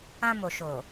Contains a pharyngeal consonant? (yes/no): no